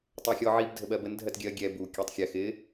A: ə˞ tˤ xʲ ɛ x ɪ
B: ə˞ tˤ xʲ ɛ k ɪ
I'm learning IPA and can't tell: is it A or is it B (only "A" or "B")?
A